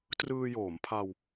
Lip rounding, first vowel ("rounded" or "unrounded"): unrounded